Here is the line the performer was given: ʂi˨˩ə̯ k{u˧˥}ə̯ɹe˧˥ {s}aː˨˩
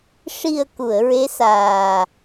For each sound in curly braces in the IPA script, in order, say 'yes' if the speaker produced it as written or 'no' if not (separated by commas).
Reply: no, yes